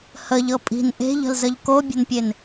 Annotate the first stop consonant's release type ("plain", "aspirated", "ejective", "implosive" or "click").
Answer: ejective